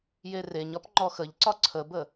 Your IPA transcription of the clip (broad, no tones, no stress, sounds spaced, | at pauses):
j e r e ɲ ɒ p ŋ͡ǃ ɔ x ə ʎ ǀ ɒ ǀʰ ə b ə